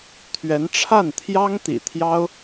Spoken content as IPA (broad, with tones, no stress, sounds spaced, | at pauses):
t̪ʰ ɥ ɛ˧˥ n ʈ͡ʂʰ a˥˩ n t̪ʰ j ɑ˥ ŋ t̪ ḭ˨˩ t̪ʰ j ɑ˥ ʊ̯